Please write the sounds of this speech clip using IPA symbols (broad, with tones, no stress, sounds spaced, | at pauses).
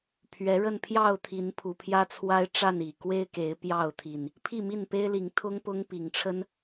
pʰ ɥ ɛ˨˦ ɻ ə˥˨ n pʰ j ɑ˥˨ ʊ̯ t̪ʰ i˨˦ n pʰ u˨˩ pʰ j ä˦ t͡sʰ w a˦ ɪ̯ ʈ͡ʂ a˥˨ n i˨˩ k w e˦ ɪ̯ k e˨˦ ɪ̯ p j ɑ˥˨ ʊ̯ t̪ʰ i˨˩ n | pʰ i˥˨ m i˥˨ n p e˦ ɪ̯ l i˨˦ ŋ t̪ʰ ʊ˦ ŋ p ʊ˦ ŋ p i˨˩ ŋ ʈ͡ʂʰ ə˦ n